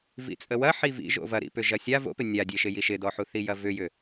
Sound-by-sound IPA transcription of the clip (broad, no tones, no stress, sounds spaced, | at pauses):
v ḭ t͡sʼ ə w ɐ ħ i v ḭ ʒ o̰ v ɐ ɾ ḭ p ʏ ʒ ɐ sʲ a v o̰ p ɪ nʲ a dʲ e ʃ ɪ j i ʃ ɪ d ɔ ħ u θ i j ɐ v ʏ j ʏ